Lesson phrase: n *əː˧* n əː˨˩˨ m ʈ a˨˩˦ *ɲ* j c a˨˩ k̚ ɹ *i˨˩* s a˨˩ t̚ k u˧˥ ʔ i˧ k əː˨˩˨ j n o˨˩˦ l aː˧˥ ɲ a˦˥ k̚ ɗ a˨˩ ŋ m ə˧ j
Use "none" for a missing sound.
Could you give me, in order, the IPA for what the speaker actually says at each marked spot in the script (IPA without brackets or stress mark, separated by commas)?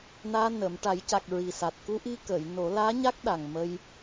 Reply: aː˧, none, i˨˩